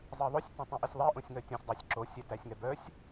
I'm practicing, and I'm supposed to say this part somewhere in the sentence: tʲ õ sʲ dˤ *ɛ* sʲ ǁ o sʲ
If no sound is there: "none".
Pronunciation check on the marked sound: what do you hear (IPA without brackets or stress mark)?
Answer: ɜ